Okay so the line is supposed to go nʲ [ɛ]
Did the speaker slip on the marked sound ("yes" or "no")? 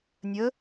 yes